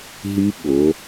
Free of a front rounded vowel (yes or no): no